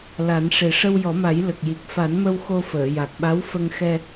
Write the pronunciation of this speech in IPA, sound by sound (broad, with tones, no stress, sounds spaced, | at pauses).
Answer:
l a˨˩˦ n ʂ e˨˩ ʂ ə˧ w j ɔ˨˩˦ m a˨˩˦ j l ə˨˩ k̚ j i˨˩ k̚ f a˨˩˦ n m ə˧ w x o˧ f əː˨˩˨ j a˨˩ k̚ ɓ a˧˥ w f ə˧ ŋ x ɛ˧